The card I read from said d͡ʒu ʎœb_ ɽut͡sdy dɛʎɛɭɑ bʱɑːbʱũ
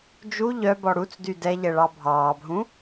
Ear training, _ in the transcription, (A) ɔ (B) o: A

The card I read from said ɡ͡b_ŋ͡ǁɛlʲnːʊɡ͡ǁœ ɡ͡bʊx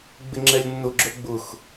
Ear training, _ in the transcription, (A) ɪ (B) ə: A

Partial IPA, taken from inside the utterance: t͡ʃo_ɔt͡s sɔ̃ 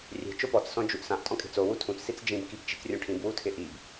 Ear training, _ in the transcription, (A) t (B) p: B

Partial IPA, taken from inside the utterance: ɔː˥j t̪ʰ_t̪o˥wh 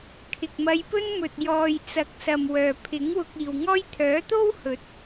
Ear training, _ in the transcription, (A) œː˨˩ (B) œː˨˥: B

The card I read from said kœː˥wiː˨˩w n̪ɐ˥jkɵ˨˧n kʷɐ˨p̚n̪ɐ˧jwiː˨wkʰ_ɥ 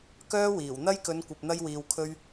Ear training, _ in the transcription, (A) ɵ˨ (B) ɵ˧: B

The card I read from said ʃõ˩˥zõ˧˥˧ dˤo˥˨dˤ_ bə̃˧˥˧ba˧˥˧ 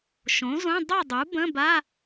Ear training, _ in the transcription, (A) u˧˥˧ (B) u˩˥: B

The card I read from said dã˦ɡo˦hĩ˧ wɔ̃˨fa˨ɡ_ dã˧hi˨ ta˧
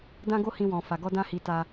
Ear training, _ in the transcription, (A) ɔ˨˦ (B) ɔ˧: B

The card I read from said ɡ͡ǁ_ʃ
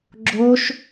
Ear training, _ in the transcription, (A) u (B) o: B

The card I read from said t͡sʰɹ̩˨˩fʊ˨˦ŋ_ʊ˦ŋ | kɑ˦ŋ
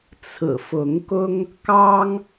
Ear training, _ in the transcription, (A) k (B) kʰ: A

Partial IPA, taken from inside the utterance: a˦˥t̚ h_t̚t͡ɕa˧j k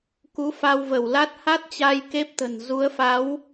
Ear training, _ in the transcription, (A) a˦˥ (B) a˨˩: A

